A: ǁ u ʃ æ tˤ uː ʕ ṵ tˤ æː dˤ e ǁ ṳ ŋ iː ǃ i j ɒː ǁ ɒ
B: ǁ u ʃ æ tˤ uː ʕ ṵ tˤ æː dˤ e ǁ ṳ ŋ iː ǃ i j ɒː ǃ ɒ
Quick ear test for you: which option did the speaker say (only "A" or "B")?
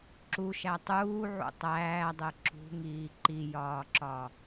A